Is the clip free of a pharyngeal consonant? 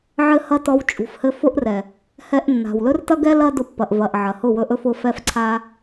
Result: no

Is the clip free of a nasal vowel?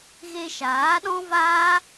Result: no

